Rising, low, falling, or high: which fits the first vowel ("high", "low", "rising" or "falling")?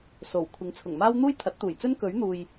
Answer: low